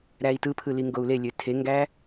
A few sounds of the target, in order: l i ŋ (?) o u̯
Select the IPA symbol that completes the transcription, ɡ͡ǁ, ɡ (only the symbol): ɡ